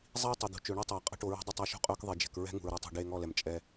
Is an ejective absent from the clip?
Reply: no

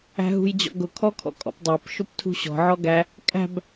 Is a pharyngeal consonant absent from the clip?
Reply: no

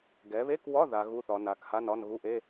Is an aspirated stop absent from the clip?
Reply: yes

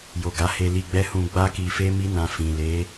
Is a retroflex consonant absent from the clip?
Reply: yes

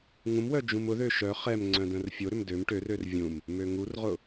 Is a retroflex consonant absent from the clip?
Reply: no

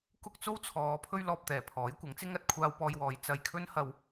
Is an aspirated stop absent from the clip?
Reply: no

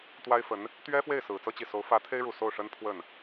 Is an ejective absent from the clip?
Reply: yes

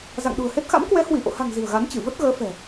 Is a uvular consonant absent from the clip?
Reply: yes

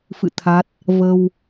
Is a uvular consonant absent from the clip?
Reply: yes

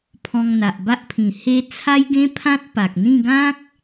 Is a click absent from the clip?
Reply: yes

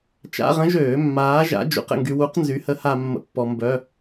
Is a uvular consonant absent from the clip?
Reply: no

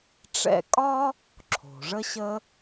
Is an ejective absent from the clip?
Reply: no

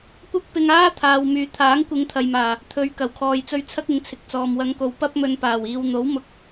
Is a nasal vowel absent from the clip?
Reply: yes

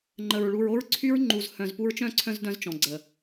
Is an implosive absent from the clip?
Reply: yes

